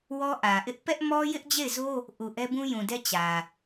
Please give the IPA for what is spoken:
wɔ˦ʔä˨ʔɪ˦ʔ pɛ˦ʔmɔ˦ jɪ˦ʔd͡ʑe˦˨ɪ̯zo˦ | ʔu˨ ʔɛ˦bũ˦jũ˨dɛ˦ t͡ɕä˨

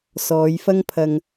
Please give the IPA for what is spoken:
sɔː˨˧jfɐ˥ŋpʰɐ˧ŋ

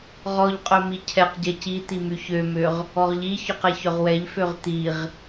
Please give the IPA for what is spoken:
ʁɔʎqʼœ micʰɛqɟɛ cit̪i myçømøʁ | ɔʁʎiçɔq ɛçœʁwɛʎføʁ t̪iʁ

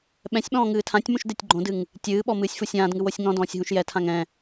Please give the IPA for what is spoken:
ɓɛ̃sʲɓɔ̃ː ŋɨːtʰãtʲmũʃ detʲɡ͡ǃõdɨŋ | tʲɨːɓɔ mɨːsʲfusʲãːdŋɨw osʲŋɔ̃dɔ̃ːsʲ ɦũʃjɛtʰãŋ ɛ̃

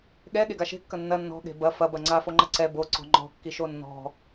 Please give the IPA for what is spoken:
ɠɛ ɠeɡaʃe̤ kːɐnːɐ nːɔ̤ ɠe̤bɐ fɐ bɐŋ͡ǀa foŋ͡ǃɐǀɛ bo ǀɔ̤ŋ͡ǃɔ̤ kːiʃonːɔ̤

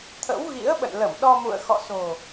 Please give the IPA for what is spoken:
t̪ʰə̰˧˥wɣḭ˧˥ə̯ɓə̰˧˨nlə˧˩m ɗɔ˧mṵ˧˨ə̯xɔ̰˧˨so̤˨˩

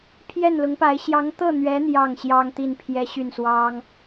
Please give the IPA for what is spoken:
pʰjɛ˥˩nlʊ˧˥ŋpa˧˥ɪ̯ ɕjɑ˧˥ŋt̪ɤ˥˩n̪ɥɛ˧˥ n̪jɑ˥˩ŋɕjɑ˥ŋt̪i˥˩n pʰjɛ˥ɕy˥˩nswɑ˥ŋ

